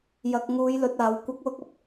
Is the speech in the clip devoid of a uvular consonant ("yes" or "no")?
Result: yes